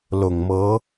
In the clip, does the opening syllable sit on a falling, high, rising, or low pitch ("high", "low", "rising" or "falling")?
low